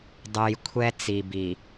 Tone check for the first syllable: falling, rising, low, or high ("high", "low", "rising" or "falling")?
low